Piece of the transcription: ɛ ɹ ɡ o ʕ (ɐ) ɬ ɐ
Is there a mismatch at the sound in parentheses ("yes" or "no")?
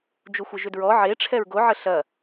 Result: yes